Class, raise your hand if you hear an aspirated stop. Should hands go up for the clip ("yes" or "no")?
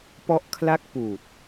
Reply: yes